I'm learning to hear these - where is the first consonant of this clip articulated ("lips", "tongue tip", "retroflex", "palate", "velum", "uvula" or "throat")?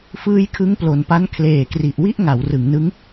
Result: lips